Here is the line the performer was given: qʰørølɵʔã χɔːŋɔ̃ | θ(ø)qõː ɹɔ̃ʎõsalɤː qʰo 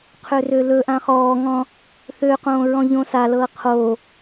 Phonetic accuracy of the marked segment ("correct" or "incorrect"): correct